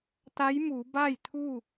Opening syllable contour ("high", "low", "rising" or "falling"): rising